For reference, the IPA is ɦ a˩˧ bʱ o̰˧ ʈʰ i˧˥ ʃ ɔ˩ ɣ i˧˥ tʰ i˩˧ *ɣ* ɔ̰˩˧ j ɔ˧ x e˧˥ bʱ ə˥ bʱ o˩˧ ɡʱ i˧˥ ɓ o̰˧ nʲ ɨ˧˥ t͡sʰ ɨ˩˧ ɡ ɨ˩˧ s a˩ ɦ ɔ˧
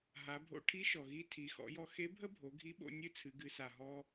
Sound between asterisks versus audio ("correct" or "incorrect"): incorrect